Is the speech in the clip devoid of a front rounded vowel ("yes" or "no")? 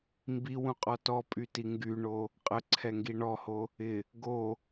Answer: no